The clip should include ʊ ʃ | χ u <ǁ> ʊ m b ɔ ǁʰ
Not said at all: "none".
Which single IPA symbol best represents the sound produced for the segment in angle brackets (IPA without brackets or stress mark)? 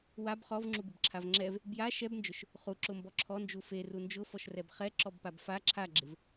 ǁ